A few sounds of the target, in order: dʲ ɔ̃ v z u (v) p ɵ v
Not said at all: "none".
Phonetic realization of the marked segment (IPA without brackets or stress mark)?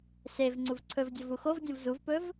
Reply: v